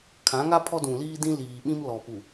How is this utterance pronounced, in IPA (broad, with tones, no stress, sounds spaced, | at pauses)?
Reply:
kʰ ã˨˦ ŋ a˦ pʰ ɔ˦ d ũ˨ l iː˦ d ĩ˦ l iː˨ ɓ ĩ˦ m l ɔ˨ p u˨